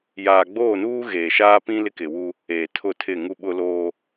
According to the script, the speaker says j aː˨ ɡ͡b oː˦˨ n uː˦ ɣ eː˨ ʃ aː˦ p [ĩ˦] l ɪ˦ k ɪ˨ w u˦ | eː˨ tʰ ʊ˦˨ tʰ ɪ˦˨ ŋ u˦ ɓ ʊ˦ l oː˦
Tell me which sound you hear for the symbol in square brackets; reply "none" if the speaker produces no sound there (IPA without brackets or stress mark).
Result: ĩ˦